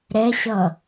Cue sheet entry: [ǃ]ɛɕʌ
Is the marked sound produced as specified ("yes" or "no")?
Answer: no